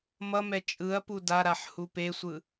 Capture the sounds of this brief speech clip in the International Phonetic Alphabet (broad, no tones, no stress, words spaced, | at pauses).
mʌmɛ t͡ʃʼɯɐ̯pu daɾaħ hupesʷɯ